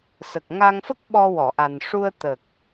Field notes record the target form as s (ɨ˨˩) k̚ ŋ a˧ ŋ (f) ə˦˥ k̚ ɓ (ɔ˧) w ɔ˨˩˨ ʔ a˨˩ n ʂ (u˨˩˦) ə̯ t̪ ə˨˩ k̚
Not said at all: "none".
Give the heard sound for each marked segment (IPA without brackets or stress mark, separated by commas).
ə˨˩, f, ɔ˧, u˧